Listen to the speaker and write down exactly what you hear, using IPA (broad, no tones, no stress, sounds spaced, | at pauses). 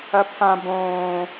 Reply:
ɐ pʰ ã b õː